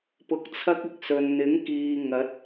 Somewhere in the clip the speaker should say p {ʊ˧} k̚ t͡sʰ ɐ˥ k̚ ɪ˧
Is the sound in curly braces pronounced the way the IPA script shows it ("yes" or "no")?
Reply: yes